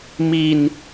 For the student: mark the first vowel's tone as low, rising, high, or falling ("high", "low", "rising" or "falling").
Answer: low